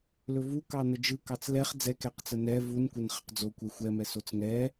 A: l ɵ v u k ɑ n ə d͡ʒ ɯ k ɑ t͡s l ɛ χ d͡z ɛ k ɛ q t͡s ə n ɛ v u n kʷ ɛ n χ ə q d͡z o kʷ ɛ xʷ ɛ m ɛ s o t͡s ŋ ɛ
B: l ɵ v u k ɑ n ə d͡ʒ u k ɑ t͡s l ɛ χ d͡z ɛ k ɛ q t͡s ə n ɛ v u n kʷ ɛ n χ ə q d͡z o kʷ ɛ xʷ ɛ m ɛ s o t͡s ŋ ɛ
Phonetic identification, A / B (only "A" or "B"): A